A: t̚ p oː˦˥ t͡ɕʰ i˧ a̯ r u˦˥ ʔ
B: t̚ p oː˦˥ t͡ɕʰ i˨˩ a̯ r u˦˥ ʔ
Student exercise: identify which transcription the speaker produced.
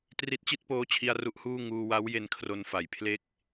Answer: A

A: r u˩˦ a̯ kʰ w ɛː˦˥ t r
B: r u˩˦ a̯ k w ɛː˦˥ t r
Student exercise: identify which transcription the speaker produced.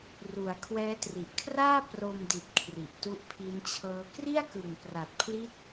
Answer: A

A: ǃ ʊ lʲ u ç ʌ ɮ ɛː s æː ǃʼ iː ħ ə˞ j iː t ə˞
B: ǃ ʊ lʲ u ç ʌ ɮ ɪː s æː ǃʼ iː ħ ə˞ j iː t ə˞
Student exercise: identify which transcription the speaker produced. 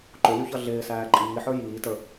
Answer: B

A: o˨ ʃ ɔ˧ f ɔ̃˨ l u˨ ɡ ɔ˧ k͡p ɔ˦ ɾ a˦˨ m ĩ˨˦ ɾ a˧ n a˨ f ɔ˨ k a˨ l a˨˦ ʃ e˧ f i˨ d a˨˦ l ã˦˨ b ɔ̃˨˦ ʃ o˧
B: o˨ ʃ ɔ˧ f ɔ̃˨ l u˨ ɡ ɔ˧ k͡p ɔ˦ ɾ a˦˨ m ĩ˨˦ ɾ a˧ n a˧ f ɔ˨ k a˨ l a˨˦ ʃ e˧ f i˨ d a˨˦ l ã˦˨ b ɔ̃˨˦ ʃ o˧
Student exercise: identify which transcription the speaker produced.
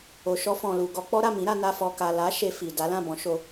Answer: B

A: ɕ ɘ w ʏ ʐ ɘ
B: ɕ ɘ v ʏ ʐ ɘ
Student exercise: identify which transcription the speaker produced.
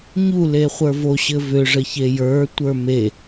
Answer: B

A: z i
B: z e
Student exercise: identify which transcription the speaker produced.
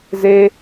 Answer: B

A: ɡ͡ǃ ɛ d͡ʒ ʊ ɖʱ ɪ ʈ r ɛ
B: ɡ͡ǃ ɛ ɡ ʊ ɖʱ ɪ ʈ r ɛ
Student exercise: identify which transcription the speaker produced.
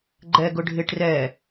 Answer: B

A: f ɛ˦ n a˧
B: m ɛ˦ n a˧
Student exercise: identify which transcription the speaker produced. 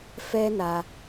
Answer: A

